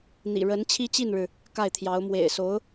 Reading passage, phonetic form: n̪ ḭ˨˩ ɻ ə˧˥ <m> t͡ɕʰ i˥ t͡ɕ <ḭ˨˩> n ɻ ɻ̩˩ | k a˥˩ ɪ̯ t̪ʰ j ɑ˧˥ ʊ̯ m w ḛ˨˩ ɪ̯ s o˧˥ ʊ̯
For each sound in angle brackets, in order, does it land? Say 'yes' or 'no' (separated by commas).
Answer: no, no